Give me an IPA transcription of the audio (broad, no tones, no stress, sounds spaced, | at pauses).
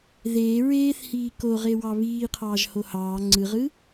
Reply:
ð eː ɹ eː θ h iː k o ʁ e w ɑ β iː qʰ ɑː ʒ h o h ɑː ŋ͡ǀ ɯ ʁ ɯ